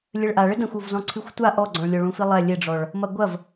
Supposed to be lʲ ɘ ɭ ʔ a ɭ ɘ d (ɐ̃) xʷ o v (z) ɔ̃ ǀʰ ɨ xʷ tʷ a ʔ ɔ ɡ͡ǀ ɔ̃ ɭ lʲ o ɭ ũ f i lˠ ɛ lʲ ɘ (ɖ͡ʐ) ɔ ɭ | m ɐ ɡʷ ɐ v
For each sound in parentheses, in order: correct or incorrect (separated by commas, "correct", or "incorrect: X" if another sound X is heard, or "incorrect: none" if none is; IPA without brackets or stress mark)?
correct, correct, correct